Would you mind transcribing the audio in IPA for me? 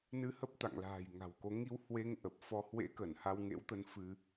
n ɨ˧ h ə˦˥ p̚ t̪ a̰˧˨ ŋ l a̤ː˨˩ j ŋ a̤˨˩ w k o˨˦ ŋ i˧ w h w e˧ ŋ ʔ ə˨˩ p̚ f ɔ˧ h w ḛ˧˥ k ə˧˩ n h a˧ w ŋ ḛ˧˥ w t̪ ə˧ n f ɨ˧

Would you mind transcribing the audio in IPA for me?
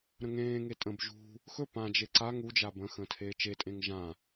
ɾ ə̃ ŋ ẽː ŋ e tʼ ə̃ b ʒ ṳ | x ɵ p ã d͡ʒ e ǀ a ŋ u d͡ʒ a b ə̃ x ə̃ː tʰ eː t͡ʃ e tʼ ẽ ŋ ʒ ã

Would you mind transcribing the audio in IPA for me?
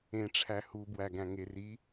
ẽ ʈ͡ʂʰ æ h u b w æ ɡ æ̃ ŋ e r i

